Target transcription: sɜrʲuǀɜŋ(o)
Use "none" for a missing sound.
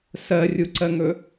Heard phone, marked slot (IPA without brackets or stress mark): ɵ